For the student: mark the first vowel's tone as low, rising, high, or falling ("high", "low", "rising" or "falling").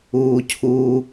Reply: low